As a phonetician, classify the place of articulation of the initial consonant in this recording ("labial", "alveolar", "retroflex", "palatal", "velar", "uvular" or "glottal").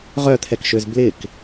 uvular